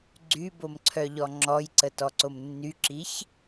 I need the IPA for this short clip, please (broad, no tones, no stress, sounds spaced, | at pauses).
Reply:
ɡ͡ǀ y b o m ǀʰ œ ʎ ɔ ŋ͡ǁ ɔ j ǀ ə t ɔ ǀ o m nː y ǁ i ç